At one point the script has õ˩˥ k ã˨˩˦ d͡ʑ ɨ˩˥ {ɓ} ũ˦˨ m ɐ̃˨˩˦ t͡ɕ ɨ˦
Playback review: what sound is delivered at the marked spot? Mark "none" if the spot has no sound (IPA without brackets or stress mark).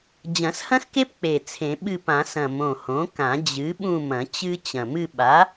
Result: ɓ